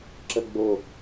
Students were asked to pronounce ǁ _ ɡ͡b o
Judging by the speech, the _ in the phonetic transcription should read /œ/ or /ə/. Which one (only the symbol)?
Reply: ə